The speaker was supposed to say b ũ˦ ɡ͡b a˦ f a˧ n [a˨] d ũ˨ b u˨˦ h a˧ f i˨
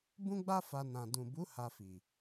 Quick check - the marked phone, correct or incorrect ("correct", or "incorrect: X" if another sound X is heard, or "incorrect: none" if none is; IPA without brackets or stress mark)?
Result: incorrect: ã˨